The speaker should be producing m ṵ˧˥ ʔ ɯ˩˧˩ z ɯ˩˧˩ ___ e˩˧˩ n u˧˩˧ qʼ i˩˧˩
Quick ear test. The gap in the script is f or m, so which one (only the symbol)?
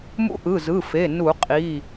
f